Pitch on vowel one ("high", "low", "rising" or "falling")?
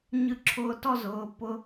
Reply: falling